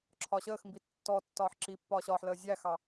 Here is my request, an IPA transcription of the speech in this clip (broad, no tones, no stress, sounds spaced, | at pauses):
ǁʰ ɒ ɕ əː x m b i tː ɔ tː ɒː ħ ǁ i pː ɒː ɕ ɒː ħ l əː zʲ æ x ɑ